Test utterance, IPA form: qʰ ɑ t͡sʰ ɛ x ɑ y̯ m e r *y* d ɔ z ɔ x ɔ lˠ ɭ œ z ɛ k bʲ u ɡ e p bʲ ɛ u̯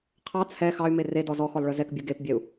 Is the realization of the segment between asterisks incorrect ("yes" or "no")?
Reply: yes